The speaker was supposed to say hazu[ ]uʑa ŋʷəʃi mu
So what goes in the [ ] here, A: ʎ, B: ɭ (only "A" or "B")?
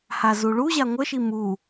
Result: B